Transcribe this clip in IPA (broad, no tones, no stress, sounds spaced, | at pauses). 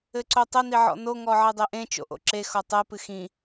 ɘ ǀ o tˤ ɘ n i ʕ ɔ̰ n o ŋ ɔ ʕ ɘ dˤ e ʔ ẽ t͡ʃ o̰ ʔ o̰ ǁ e x ɔ tˤ ɘ p ɨ x ĩ